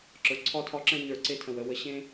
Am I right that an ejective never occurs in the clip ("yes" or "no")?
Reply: yes